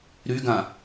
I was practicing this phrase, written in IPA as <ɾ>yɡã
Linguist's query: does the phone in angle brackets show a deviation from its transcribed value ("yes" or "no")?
no